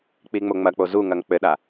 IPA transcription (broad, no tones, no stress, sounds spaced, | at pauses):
k͡p i ŋ͡m o ŋ͡m ɐ k͡p o z u ŋ ɐ ŋ k͡p ɘ ɗ a